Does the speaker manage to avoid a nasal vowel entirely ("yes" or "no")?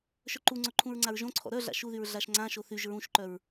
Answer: no